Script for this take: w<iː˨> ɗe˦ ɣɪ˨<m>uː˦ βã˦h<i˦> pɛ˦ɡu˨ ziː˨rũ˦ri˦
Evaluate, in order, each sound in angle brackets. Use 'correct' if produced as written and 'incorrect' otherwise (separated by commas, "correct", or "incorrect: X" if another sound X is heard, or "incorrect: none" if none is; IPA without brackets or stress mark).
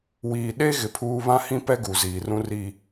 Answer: correct, incorrect: pʰ, incorrect: ĩ˦